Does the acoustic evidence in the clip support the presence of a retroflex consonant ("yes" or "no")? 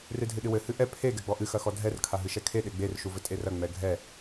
no